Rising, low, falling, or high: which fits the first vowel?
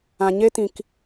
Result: low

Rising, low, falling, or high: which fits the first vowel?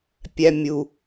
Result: high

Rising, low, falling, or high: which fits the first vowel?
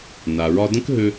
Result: low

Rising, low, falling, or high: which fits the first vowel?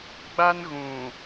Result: high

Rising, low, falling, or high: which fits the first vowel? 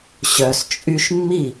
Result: low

